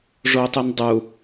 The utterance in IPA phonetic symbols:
ʐ o tˤ u n dˤ u

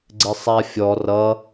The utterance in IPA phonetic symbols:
ɡ͡ǀ ɪ sˤ a fʲ ɔ r ʌ

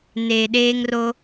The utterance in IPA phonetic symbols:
n eː˨ ɗ eː˦ ŋ r o˦

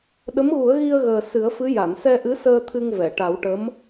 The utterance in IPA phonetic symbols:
ɗ ə˧˥ m ɣ u˨˩˦ ə̯ ɣ i˧ ə̯ ɣ əː˨˩ s ɨ˨˩˦ ə̯ f ɨ˧˥ j a˨˩˨ n s ɛ˧ ʔ ɨ˧˥ s əː˧ t̪ʰ ɨ˧ ŋ v ɛ˨˩˨ ʈ a˨˩˦ w ʈ ə˧˥ m

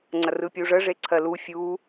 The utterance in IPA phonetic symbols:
ŋ͡ǀ ɐ r ɯ pʲ u ʐ ə ʐ e ǀʰ ɜ l u fʲ u

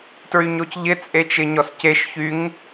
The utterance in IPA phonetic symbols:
t ɹ y ɲ o c ʎ ɪ t͡sʼ e t͡ʃ ɪ ɲ ɔ s c e ʃ ç y ŋ

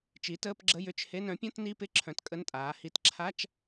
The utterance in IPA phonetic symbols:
t͡ʃ i˩˥ t əː˧˥˧ p ɡ͡ǁ ə˧˥˧ j ʏ˧˥˧ t͡ʃ h e˧˥˧ n œ̃˩˥ pʲ ɔ̃˧˥˧ t n i˧˥˧ p ɪ˧˥˧ ǁʰ œ̃˩˥ t kʼ ə˧˥˧ n tʼ aː˩˥ h i˧˥˧ t ǁʰ a˧˥˧ t͡ʃ

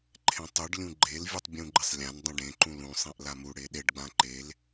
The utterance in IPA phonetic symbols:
ǃʰ ẽ tˤ u ɖ lʲ ũ ɡ͡ǃ e l vʲ u tˤ bʲ ũ ɡ͡ǃ ɪ sˤ lʲ ã n dˤ ũ ɖ ẽ ǃ ũ l ũ sˤ ẽ ʔ l a m u ɽ e ɗ e ɖ ɡ͡b ã ǃ e l

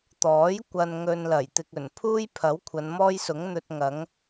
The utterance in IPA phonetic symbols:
t̪ ɔː˨˥ j kʷ ɐ˨ n ŋ ɵ˨ n l ɐ˨˩ j t̪ ɪ˧ k̚ ɵ˨˩ n pʰ uː˥ j pʰ ɐ˨˥ w kʷʰ ɐ˨˧ n m ɔː˥ j s ʊ˨˥ ŋ n̪ ɵ˧ t̚ ŋ ɐ˨˥ ŋ

